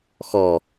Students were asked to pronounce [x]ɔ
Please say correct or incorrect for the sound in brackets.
correct